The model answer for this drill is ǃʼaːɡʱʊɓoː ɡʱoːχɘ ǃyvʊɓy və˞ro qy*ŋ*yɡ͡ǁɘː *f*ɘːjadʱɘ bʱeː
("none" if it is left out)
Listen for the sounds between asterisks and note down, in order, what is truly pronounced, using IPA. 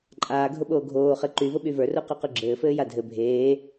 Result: q, f

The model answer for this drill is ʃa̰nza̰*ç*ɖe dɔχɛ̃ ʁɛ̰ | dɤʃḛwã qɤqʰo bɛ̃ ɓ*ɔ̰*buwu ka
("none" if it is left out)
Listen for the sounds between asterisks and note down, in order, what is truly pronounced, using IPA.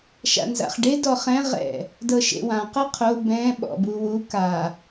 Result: χ, ɔ̰

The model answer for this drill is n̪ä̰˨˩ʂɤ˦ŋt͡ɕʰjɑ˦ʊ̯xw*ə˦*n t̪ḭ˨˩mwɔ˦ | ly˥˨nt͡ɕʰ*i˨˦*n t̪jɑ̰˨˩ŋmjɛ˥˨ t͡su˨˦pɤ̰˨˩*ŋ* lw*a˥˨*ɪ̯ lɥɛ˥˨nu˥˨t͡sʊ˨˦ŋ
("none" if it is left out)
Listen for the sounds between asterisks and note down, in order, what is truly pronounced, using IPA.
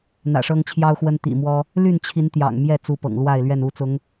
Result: ə˦, i˨˦, ŋ, a˥˨

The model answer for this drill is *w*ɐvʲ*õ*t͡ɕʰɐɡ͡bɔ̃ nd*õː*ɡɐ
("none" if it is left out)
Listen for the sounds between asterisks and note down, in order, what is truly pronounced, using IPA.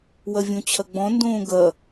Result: w, õ, õː

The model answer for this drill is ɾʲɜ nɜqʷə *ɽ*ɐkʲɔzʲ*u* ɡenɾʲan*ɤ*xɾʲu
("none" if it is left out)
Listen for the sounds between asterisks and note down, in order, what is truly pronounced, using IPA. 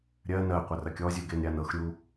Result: r, u, ɤ

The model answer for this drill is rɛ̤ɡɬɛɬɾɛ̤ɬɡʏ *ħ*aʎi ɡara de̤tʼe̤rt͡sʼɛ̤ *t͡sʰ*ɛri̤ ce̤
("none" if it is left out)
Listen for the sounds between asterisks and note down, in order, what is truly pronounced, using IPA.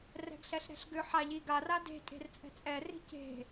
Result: ħ, t͡sʼ

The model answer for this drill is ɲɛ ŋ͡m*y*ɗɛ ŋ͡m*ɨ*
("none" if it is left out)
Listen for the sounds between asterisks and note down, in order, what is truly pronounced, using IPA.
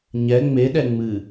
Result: e, ɨ

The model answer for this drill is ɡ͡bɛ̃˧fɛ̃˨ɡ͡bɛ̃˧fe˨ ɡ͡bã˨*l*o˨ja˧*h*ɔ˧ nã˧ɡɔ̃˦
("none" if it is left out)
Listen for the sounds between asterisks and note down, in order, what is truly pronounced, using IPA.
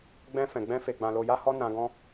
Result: l, h

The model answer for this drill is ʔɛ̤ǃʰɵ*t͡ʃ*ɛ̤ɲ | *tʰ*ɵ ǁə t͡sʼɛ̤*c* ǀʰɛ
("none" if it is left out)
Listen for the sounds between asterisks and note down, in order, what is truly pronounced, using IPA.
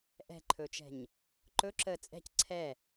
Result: t͡ʃ, ǃ, c

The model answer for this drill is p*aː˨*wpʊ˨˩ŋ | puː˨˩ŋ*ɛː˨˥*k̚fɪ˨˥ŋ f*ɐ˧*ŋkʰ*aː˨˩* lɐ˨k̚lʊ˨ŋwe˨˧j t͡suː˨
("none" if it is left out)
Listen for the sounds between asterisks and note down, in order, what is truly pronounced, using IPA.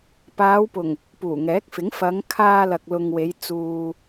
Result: aː˨˧, ɛː˨˥, ɐ˨˧, aː˧

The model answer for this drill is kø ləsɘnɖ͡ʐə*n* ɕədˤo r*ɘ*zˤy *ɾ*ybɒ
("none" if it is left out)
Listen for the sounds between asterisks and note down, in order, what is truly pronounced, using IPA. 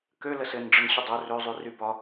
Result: n, ø, r

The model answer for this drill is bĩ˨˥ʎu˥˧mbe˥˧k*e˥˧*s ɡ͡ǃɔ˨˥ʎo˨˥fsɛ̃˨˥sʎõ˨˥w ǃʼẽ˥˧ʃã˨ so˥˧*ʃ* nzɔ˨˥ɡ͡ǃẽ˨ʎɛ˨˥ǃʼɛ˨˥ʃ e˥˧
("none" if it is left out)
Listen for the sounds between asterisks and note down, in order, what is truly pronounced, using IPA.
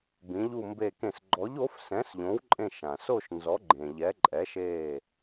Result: ẽ˥˧, ʃ

